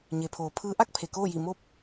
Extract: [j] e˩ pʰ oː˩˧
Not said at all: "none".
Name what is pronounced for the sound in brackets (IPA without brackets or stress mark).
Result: ɲ